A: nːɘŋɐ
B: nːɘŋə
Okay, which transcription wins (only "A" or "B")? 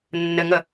B